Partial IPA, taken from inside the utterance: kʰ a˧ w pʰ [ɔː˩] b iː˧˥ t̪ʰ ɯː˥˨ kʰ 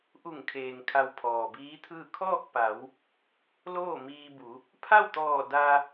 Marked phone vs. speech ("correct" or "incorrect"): correct